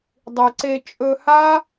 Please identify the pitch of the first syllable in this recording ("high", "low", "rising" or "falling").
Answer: low